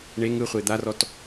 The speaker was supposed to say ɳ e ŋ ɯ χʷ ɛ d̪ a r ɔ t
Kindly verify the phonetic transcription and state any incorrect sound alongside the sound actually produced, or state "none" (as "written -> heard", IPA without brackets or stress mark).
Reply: ɛ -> e